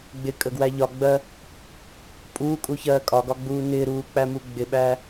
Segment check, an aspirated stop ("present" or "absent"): absent